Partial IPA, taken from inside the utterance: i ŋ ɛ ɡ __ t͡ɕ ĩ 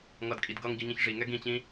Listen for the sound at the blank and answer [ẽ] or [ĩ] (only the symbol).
ĩ